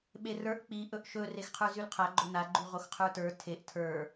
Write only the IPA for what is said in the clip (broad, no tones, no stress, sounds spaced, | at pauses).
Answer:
ɓ e r ə˞ ʔ k͡p i ʔ ɵ ʔ ʃ ɵ r e x qʰ ə˞ z y l qʰ a ɡ͡ǃ o n a ɡ͡ǃ y ʁ o x qʰ ə˞ t ə˞ tʰ e ʔ tʰ ə˞